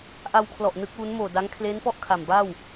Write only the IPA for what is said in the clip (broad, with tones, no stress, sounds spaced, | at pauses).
ʔ a˧ w kʰ l ɔ˨˩ ʔ n ɯ˦˥ k̚ w u˦˥ n m oː˨˩ d a˦˥ ŋ kʰ l eː˦˥ n p ɔ˥˩ ʔ kʰ a˨˩ m b aː˥˩ w